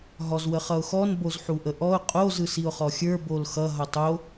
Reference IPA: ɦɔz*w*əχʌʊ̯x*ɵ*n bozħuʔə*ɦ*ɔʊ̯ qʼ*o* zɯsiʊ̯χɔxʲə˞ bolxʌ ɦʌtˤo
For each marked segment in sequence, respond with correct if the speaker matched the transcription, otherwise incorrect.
correct, incorrect, incorrect, correct

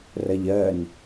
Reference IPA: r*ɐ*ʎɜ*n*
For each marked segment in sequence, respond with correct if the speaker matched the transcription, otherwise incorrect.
correct, correct

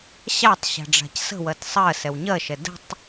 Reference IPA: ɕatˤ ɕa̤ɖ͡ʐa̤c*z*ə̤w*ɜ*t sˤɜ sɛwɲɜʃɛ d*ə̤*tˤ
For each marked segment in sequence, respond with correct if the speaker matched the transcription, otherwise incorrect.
incorrect, correct, correct

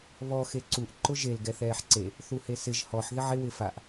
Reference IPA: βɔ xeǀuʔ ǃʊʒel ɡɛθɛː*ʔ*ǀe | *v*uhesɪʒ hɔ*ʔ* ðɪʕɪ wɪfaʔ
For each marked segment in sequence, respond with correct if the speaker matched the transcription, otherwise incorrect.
incorrect, incorrect, incorrect

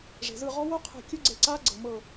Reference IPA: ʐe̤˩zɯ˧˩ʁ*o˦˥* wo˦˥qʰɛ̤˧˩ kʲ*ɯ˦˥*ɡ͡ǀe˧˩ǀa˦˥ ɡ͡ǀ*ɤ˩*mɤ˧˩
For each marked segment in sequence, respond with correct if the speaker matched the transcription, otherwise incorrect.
incorrect, correct, correct

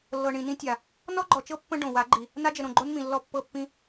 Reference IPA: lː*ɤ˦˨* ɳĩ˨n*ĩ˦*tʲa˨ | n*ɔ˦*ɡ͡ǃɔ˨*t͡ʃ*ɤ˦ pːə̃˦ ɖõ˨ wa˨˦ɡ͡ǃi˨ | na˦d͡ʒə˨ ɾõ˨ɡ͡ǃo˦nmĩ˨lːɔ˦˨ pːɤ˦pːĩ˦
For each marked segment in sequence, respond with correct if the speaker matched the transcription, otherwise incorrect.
incorrect, correct, correct, correct

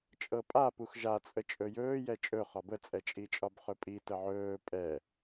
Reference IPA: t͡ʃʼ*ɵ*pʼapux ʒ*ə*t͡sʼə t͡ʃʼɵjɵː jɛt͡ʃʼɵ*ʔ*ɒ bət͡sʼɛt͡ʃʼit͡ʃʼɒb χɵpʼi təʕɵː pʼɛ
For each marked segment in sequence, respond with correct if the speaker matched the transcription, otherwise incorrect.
incorrect, incorrect, incorrect

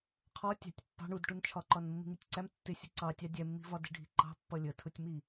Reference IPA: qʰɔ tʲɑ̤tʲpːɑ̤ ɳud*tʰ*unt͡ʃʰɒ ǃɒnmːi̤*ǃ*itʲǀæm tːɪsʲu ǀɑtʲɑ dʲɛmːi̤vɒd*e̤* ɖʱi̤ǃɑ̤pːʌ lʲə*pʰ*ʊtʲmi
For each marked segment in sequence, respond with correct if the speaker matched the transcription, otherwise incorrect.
incorrect, incorrect, incorrect, incorrect

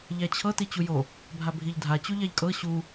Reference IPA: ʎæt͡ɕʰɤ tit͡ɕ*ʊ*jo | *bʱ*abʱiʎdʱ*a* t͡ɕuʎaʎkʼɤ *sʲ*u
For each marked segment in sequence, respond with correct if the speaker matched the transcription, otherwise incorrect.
incorrect, correct, correct, incorrect

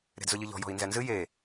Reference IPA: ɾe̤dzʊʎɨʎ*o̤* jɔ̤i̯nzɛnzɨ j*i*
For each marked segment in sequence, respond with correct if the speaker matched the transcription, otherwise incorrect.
incorrect, incorrect

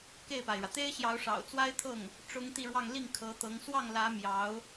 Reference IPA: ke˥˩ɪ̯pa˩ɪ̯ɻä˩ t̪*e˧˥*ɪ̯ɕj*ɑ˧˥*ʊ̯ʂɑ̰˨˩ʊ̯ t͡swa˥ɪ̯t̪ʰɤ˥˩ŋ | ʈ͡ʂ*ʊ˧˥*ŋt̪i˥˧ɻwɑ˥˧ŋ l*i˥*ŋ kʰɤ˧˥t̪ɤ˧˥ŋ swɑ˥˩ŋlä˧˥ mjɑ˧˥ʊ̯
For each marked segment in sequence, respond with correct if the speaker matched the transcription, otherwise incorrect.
incorrect, correct, incorrect, incorrect

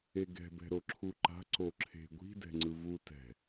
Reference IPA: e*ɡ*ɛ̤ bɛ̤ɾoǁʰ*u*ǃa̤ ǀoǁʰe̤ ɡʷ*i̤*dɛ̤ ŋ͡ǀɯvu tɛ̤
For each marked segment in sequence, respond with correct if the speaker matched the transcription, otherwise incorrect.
correct, correct, correct

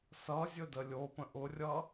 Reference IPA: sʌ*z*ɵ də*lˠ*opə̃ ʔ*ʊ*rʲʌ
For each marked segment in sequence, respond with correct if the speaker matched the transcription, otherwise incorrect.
incorrect, incorrect, correct

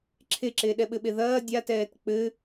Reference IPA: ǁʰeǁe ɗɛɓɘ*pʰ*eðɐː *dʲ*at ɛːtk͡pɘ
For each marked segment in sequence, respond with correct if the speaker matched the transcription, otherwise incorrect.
incorrect, correct

